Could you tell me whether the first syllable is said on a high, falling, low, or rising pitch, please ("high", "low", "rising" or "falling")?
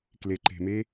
low